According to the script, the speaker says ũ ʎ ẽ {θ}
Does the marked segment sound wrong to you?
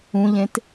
yes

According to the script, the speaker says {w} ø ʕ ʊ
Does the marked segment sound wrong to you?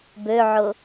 yes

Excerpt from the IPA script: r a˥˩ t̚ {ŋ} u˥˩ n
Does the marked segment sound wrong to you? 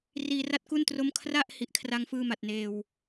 yes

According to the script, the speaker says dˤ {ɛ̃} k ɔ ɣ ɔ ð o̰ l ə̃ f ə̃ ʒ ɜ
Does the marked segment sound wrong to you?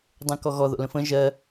no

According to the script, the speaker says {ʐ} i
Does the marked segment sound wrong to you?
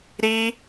yes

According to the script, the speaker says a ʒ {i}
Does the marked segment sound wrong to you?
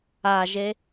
yes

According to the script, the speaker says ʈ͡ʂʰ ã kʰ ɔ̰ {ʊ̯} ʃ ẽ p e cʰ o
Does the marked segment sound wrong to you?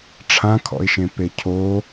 yes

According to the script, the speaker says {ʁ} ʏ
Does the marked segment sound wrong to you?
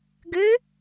yes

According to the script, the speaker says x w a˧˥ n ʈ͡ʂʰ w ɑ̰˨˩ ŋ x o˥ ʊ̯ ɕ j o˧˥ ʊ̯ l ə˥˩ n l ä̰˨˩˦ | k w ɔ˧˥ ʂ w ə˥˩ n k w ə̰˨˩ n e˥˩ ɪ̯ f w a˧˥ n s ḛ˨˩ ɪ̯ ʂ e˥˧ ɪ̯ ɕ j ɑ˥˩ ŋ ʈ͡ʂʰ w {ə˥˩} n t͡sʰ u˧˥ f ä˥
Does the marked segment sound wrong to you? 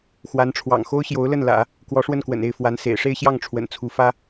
yes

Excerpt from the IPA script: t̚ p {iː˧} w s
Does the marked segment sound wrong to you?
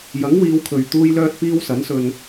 no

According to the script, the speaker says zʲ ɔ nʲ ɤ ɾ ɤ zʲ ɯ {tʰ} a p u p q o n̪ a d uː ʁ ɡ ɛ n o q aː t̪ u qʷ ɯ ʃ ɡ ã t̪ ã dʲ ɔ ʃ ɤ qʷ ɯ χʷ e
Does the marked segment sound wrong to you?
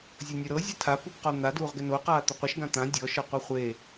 no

